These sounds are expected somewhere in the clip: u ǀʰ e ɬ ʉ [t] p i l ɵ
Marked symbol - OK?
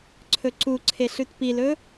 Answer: yes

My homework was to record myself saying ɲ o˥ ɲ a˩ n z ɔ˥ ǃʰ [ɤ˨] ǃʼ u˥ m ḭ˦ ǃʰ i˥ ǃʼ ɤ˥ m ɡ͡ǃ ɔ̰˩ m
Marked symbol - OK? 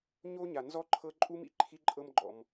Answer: no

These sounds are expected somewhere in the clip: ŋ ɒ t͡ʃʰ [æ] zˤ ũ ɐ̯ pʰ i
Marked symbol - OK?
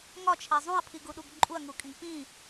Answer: yes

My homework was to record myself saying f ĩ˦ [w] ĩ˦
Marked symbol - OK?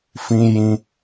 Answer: no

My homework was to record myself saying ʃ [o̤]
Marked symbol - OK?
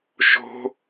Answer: yes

